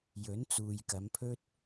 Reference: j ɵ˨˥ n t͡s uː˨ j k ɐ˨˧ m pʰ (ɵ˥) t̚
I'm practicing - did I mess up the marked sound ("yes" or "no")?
no